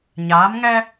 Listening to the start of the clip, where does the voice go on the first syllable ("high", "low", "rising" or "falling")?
rising